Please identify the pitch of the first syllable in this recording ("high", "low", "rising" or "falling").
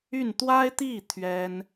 falling